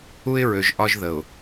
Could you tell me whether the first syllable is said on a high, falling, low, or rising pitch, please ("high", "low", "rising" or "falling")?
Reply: high